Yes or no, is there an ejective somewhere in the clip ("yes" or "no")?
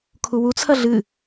no